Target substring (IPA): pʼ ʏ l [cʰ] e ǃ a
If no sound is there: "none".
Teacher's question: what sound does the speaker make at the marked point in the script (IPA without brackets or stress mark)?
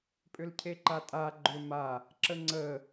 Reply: cʰ